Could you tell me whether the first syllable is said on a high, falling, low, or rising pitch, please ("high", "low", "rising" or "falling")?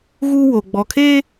high